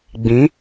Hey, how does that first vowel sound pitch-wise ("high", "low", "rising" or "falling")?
rising